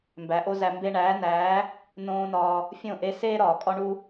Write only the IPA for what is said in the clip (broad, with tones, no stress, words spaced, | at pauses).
mbæ˨˦ʔo˦zæ˧ mbe˧ɳæː˨˦næː˨˦ | nõː˦nɒː˧ | fʲõ˦˨ʔe˧ seː˦ɾɒː˨ kʼɒ˦ɳu˦